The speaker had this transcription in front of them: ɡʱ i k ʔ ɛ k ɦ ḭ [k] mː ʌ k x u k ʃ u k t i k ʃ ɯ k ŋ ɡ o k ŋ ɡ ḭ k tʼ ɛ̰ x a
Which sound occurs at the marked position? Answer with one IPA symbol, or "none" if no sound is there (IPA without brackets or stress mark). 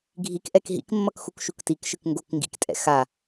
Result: k